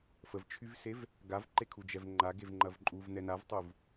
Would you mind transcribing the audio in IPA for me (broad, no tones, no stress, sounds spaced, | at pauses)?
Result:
f ə v t͡ʃʰ y v s e v | ɡ a v ǃ e kʰ u d͡ʒ ɛ v ŋ͡ǃ a ɡ e v ŋ͡ǃ ɐ v ǃʼ u v n ɛ n a v tˤ u v